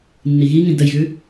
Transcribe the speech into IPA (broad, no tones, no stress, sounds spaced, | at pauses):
nː i ɣ i ŋ ĩ d ə j ɣ ʉ